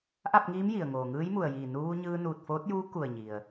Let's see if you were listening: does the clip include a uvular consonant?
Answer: no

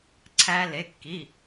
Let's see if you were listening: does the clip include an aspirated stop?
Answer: yes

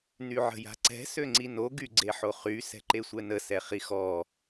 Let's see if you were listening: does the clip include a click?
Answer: yes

